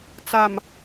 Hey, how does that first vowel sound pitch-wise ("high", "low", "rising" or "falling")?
low